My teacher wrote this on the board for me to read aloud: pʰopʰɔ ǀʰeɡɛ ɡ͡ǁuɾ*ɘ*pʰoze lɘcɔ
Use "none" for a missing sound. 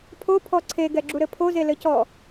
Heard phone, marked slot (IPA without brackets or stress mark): ɘ